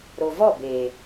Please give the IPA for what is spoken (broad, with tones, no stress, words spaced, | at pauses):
ɾo˨vɔ˦˨beː˨